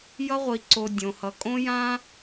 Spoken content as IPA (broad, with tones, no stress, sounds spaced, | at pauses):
j ʌ˧ ʁʷ i˨ ǀ o˨ dʲ õ˨ h ʌ˨ kʼ õ˦ j ã˦